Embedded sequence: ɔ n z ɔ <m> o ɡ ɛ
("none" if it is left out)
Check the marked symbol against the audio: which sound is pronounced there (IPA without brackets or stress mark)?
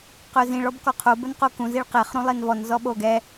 ɓ